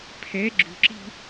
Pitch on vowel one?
rising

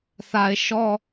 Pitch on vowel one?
low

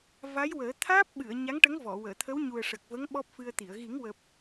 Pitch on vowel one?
rising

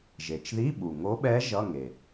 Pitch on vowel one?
low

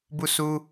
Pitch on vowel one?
falling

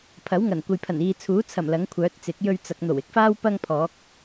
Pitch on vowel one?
rising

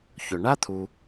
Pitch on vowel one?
low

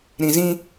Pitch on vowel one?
low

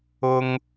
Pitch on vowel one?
high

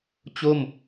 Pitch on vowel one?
falling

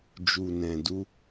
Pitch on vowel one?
low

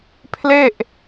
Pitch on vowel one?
falling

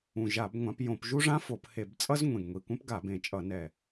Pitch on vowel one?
low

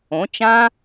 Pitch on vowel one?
rising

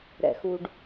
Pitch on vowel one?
low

